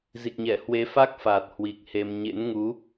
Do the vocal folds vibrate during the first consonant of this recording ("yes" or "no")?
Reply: yes